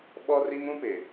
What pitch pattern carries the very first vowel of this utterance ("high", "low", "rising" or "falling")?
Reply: high